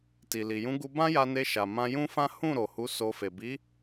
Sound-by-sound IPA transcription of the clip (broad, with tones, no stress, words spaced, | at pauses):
ti˨li˨jũ˨˦ ɡu˧bã˦ja˧ ne˧ ʃa˨ mã˧jũ˦fã˦ hũ˦˨ɾo˨ hu˨˦so˧fe˨ bi˨˦